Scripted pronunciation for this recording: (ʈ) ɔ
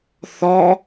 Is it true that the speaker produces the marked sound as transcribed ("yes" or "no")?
no